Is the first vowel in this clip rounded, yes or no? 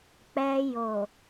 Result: no